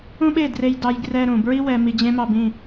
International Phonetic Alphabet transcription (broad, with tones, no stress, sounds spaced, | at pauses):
ũ˦ ɓ e˦˨ d r e˧ j d ɑ˧ j ɡ r ɛ˧ ɾ ũ˨ b ɹ i˦ w ɛ˧ m i˧ d͡ʑ ẽ˦ m ɑ˧ b ĩ˦˨